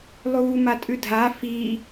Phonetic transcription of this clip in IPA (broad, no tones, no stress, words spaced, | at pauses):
lˠuːmatʼʉdʱa fi